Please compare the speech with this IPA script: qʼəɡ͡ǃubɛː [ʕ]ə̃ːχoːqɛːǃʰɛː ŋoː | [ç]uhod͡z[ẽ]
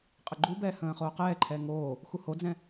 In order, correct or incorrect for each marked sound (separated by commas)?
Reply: incorrect, incorrect, incorrect